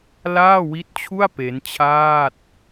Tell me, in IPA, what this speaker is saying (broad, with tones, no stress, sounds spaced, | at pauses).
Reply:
l aː˥˩ w i˦˥ t̚ t͡ɕʰ u˥˩ a̯ p e˦˥ n t͡ɕʰ aː˥˩ t̚